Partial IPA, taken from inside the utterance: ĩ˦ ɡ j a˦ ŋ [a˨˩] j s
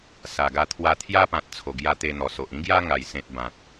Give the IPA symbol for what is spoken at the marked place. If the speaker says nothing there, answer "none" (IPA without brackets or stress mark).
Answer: a˨˩